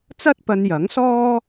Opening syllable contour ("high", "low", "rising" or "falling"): high